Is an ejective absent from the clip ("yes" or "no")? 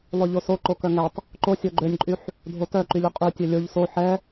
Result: no